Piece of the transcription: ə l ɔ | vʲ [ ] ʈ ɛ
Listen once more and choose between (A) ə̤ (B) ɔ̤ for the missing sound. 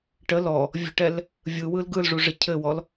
A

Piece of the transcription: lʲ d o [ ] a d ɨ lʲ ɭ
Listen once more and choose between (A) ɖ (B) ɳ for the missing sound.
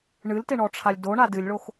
B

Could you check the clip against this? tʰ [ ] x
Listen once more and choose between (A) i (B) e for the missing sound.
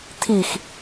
A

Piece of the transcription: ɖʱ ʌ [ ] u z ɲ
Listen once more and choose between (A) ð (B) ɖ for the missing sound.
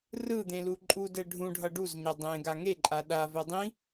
B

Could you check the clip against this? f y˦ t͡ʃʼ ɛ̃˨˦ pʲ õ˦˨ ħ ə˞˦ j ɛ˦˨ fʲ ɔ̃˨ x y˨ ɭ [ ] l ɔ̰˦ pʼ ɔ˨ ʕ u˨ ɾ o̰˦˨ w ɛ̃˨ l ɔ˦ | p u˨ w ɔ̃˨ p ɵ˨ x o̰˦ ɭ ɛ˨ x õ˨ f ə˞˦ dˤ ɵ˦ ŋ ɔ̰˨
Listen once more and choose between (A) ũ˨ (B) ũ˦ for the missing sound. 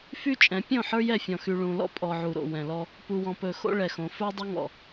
A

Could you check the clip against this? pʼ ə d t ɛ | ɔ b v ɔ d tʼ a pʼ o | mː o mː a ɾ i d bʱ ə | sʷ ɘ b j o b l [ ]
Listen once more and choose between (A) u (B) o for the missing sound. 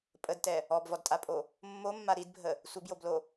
B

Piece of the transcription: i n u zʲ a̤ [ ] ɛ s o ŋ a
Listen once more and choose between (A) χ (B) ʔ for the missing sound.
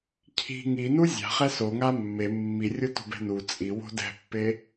A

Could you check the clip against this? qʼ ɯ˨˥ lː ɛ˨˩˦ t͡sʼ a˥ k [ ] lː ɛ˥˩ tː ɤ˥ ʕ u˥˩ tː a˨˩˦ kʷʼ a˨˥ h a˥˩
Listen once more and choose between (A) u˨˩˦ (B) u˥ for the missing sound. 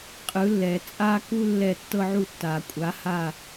B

